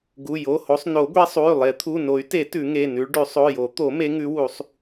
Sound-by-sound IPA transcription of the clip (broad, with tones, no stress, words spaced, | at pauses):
ɡu˩˧˩jo˩˧˩ho˨˦sˤ no˨˩˦ɡʷe˨˦sˤu˩˧˩y̯ lˠe˨˩˦t̪ʰu˩˧˩no˨˩˦y̯te˨˩˦ tʉ˨˩˦ŋe˩˧˩nʉ˨˦ɭɖʉ˨˩˦ sˤo˩˧˩jo˨˩˦ t̪o˨˩˦me˨˦ŋʉ˨˦wu˨˩˦sˤ